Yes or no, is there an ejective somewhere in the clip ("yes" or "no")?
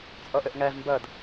yes